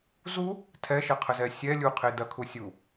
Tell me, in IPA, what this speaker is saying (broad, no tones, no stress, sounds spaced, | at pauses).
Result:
z u | tʰ ɛ ʃ ɐ qʰ ə z ɛ sʲ ɛ lʲ u qʰ e d ɐ kʰ u sʲ u